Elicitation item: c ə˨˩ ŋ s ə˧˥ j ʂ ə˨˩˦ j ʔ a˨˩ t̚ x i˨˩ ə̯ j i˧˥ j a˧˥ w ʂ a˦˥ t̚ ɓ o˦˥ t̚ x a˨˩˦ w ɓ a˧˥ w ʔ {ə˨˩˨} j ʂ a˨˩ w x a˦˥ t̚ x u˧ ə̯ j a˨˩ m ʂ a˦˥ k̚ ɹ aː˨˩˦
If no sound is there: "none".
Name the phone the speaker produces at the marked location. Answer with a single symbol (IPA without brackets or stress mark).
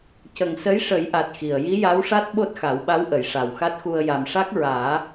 ə˨˩˨